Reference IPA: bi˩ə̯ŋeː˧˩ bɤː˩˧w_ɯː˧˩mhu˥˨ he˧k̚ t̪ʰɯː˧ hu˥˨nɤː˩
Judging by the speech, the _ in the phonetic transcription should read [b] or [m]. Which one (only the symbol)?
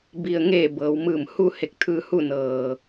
m